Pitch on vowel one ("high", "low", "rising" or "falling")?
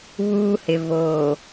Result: high